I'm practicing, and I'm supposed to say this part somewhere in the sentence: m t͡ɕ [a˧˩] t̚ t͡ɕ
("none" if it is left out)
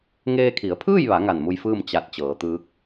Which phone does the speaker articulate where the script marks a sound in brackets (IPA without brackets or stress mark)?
a˧